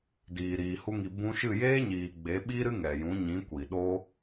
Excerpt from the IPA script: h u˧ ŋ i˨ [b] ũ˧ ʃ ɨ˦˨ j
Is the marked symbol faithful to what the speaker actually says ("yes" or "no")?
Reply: yes